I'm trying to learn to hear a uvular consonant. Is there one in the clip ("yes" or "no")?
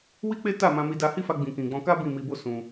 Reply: no